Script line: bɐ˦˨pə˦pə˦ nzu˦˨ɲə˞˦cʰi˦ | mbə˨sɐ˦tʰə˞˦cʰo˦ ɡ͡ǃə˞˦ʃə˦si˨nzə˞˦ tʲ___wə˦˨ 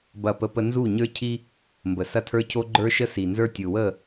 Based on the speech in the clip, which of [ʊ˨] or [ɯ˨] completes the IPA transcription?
ɯ˨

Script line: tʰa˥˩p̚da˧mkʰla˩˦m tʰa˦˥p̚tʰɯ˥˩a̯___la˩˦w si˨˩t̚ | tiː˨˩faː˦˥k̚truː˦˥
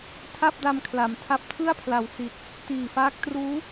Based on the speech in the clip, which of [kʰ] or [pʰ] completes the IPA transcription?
pʰ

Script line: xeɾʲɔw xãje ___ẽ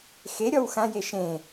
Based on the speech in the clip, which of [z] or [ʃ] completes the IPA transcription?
ʃ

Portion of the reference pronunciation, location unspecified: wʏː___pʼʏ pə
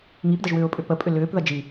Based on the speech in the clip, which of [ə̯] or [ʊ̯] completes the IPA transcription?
ʊ̯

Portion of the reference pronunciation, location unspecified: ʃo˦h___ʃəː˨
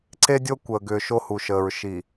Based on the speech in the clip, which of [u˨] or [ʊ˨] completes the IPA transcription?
u˨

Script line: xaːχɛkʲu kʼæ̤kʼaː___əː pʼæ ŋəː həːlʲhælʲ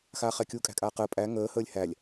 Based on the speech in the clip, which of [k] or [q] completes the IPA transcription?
q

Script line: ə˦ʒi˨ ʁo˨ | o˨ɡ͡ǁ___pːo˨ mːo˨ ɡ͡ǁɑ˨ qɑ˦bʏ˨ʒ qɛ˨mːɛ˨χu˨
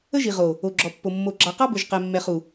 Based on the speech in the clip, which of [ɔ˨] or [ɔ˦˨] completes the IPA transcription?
ɔ˨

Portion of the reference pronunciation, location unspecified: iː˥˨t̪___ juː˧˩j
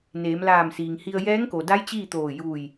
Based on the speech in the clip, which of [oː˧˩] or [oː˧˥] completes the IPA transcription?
oː˧˩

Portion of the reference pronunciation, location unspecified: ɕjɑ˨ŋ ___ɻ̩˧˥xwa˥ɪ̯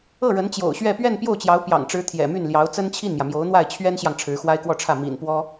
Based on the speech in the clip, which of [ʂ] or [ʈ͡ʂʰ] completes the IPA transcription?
ʈ͡ʂʰ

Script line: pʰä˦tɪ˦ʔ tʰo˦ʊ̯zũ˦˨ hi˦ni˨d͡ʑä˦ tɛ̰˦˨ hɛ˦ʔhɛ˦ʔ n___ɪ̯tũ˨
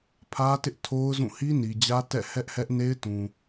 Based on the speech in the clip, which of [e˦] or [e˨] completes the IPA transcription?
e˦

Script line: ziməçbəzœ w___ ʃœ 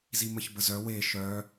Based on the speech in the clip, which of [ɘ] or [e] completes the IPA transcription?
e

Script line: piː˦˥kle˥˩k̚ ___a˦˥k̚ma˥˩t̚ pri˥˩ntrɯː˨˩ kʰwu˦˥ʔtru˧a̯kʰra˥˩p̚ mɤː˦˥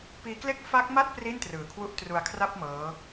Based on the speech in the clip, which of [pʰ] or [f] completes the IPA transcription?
f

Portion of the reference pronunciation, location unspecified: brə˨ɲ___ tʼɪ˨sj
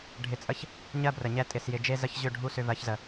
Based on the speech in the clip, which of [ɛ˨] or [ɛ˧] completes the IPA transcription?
ɛ˧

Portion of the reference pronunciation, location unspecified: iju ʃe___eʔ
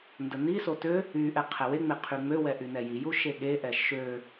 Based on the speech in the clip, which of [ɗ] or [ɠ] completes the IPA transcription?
ɠ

